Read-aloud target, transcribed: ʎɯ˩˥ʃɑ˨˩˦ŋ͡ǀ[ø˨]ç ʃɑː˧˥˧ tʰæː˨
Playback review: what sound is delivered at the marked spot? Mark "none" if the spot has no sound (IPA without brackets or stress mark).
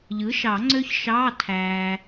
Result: ø˦˥